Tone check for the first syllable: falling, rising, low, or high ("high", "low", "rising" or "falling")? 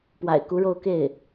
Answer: low